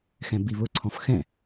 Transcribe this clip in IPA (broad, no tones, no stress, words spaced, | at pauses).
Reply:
xɛ̃biβʊǀʰɔ̃f xɛ̃